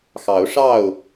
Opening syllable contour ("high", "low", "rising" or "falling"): rising